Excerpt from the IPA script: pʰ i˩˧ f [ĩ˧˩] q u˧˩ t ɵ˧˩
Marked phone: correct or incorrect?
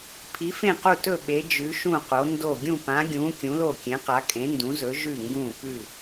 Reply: incorrect